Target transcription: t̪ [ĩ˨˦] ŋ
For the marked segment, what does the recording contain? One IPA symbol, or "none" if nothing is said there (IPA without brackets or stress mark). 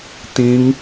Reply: ĩ˨˦